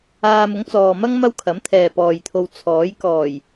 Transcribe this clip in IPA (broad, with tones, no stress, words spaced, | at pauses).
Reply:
aː˧mʊ˨˥ŋt͡sɔː˨mɐ˥ŋ mɐ˥wkʰɐ˨˥mt̪ʰɛː˨ pɔː˨jt̪ʰo˧w t͡sʰɔː˨˥j kɔː˨˩j